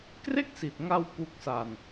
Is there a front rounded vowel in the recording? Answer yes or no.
no